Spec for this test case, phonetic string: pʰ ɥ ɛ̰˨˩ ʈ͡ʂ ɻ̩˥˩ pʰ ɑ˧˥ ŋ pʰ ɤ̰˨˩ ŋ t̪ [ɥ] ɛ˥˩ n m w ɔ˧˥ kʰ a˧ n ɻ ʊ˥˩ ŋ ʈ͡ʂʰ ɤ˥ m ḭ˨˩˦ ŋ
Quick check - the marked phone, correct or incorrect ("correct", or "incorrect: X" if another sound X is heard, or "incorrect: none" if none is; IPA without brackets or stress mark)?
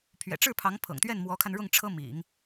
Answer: correct